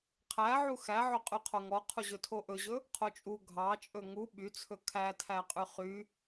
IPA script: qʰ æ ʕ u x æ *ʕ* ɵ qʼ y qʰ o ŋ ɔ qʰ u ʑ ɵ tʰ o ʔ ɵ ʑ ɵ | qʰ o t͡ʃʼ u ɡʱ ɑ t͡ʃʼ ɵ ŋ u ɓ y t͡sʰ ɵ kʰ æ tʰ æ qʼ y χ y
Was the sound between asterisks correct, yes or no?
yes